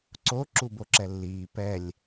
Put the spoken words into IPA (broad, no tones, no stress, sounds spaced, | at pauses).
ǀ o ǁ u b o ǁ ɛ lː iː p ɛ lʲ